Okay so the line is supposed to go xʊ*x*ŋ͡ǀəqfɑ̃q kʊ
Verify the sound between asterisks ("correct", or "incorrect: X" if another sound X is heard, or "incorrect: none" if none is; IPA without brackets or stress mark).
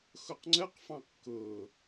incorrect: q